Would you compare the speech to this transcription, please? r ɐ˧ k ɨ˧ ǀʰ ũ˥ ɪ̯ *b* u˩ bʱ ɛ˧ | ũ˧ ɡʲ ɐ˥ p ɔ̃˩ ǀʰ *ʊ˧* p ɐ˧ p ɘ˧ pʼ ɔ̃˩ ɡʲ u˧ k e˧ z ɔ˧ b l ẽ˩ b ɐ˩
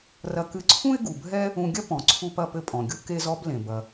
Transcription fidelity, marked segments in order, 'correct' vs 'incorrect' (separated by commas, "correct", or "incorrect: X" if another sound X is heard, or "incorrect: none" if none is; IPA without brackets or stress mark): incorrect: ɡ, incorrect: u˧